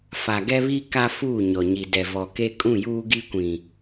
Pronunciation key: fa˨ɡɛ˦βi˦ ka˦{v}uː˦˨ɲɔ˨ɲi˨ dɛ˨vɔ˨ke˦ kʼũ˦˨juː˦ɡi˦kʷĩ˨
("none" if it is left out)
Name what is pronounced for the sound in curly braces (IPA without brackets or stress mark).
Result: f